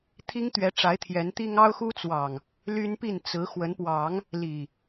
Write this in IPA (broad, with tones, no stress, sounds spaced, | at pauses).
t̪ʰ i˦ ŋ t̪ ɥ ɛ˨˦ ʈ͡ʂ a˨˦ ɪ̯ t̪ʰ j ɛ˨˦ n t̪ i˦ ŋ ɑ˦ ʊ̯ x u˦ t͡s w ɑ˨˩ ŋ | l y˦ n p i˥˨ n t͡s ɹ̩˨˦ x w ə˨˦ n p w ɑ˨˦ ŋ | l i˨˩